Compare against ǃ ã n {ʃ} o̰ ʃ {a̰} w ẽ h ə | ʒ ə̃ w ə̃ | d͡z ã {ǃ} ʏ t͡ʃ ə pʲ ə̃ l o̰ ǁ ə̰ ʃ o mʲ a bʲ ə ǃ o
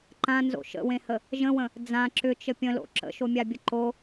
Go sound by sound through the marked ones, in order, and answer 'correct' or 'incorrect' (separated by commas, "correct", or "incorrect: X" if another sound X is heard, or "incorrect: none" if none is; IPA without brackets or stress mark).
incorrect: z, incorrect: ə̰, incorrect: ǁ